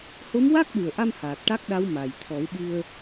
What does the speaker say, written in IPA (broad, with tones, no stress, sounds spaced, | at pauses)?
h o˧˥ m w a˦˥ k̚ ɗ u˨˩ ə̯ ʔ a˧ m h aː˨˩ t̚ ʈ a˦˥ k̚ ɗ a˧˥ w m a˨˩ j t̪ʰ ɔ˨˩˦ w ɓ ɨ˧ ə̯